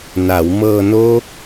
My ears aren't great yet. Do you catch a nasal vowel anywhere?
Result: no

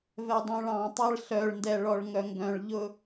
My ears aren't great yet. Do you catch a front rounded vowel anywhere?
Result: yes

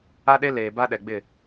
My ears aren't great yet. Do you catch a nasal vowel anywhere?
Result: no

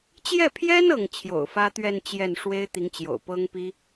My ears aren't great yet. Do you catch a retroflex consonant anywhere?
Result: yes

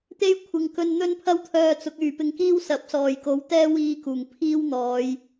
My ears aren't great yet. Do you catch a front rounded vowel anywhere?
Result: yes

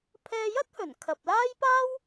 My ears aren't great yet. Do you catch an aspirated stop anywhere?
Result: yes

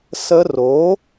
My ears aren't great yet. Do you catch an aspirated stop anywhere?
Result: no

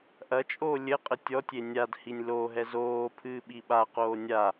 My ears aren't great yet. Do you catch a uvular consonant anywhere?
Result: yes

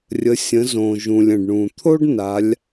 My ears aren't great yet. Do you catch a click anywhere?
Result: no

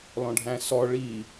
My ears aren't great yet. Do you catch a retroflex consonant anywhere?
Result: yes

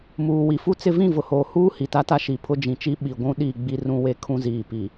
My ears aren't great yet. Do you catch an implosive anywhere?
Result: yes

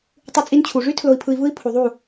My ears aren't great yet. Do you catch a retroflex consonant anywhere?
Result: yes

